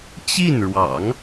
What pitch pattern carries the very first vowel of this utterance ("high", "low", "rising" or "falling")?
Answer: falling